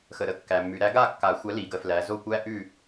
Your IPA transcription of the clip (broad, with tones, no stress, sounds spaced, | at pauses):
x ə˨ ɾ ə˨˥ kː æ˨ mː ʉ˨˩˦ ɾ æ˨˥ ɡ a˥˨ kː a˨˩˦ xʷ æ˨˥ l i˨˩˦ ɡ ə˨˥ f l æ˨˥ z o˥˨ kʷ æ˥ ʔ ʉ˥˨